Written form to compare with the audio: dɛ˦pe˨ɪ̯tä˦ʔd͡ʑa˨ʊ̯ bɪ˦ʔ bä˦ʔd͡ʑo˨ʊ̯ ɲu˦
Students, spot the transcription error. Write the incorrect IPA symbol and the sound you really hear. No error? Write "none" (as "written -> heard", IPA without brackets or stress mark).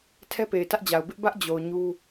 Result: d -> tʰ